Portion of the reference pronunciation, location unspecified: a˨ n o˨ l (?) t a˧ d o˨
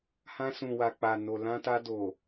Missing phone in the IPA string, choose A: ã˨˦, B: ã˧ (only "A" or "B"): B